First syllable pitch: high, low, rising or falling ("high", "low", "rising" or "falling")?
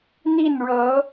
falling